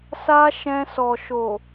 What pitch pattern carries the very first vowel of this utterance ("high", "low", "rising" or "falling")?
high